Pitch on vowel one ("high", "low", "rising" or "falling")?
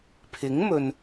rising